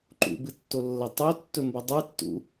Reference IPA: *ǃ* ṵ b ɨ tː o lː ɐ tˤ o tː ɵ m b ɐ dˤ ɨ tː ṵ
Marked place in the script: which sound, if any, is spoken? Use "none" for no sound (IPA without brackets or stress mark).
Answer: ǃ